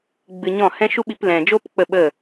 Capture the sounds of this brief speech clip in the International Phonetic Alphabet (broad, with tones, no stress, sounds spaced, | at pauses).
ɡ͡b ɨ˧ ɲ ɔ̃˦˨ h ɛ̃˦ ʃ u˦ ɓ i˧ p l ɛ̃˨ d͡ʒ o˦ p k͡p ə˦˨ ɓ ə˦˨